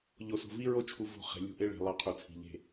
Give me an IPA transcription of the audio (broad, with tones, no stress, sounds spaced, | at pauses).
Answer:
ʎ o˨ s o̤˨ v i˦ ɹ o˦ t͡ʃʰ u˨ v o̤˦˨ χ e̤˨ lʲ ṳ˦ ʔ e˦ ɭ e̤˨ lˠ ɑ˦ qʰ u˨ t͡sʰ i̤˨ ʎ e̤˨